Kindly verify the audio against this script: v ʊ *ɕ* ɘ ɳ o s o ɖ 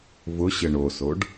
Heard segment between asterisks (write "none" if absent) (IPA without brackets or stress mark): ɕ